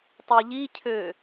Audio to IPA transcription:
tˤɛʎicʰø

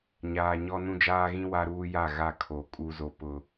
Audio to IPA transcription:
ɲaː˨ɲɔ˦ nũ˦d͡ʒaː˦ɣĩ˦ wa˦ɾuː˦ja˦˨ ɣa˦˨ kʰo˨˦ kʼu˦zo˦ pʊ˦

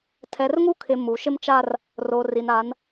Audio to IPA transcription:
tʰɛ˨rŋu˦kʰɪ˨ mu˨ ʃɪ˦mt͡ʃa˦r | roː˨ri˨na˨˦n

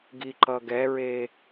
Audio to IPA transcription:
ɡiǃʌɡɛɹe

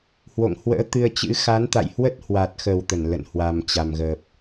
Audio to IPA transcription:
hwo̰˧˨ŋhwə̰ː˧˥ t̪ɨ˧ə̯t͡ɕɨ̰˧˥ xa˨˦nt̪a̰˧˨jhwə˦˥t̚ hwa˨˩t̚xə˨˩w t̪ə˧˩nlə̰˧˨n hwa˨˩mt͡ɕa˨˩mɣəː˨˩p̚

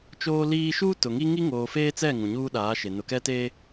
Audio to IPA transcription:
t͡ʃoː˦liː˦ ʃuː˦tʊ˨ŋi˦ ŋi˦ŋoː˨feː˦t͡sɛ˦˨ ŋũ˨ɲuː˦ɗaː˨˦ʃe˨ nʊ˨kɛ˦teː˦

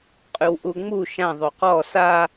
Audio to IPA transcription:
qʼʉwʔuŋ͡mu ʃã ðˤoqɔ sa

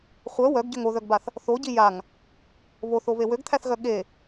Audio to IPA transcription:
χʷœ wœɡɟøŋ oðœɡbaθ | θoɟi jaŋ | βoθoβe wøɡt̪ʰæθɣœ ɠe

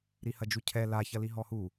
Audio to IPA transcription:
ɾihɐd͡ʒucʰɛ la çɐliɦɔhu

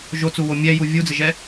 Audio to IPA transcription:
ʒot͡suwo mʲɛju vʲud͡zɪʒɛ

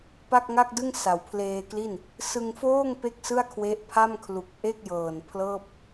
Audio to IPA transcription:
pa˥˩k̚ŋa˥˩k̚dɯ˥˩ŋ sa˩˦wpʰleː˧kli˥˩n | sɯ˧ŋfoː˥˩ŋ pe˥˩k̚sɯ˥˩a̯kʰwe˦˥ʔ pʰa˥˩mkʰlu˨˩k̚ ʔe˥˩k̚jɤː˨˩n pʰlɤː˥˩p̚

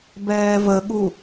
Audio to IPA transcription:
bɛːvəɠu

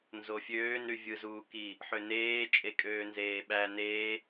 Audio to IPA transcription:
nzofʲøːnɾy vʲɯzuːki | ħøneː t͡ʃʼekʼøːnzeːɓæ ne

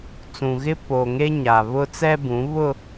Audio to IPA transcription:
t͡sũ˨ɣɪ˦ po˨ŋe˦ ɲa˨ βʊ˦t͡sɛ˦bũ˨˦ βʊ˦

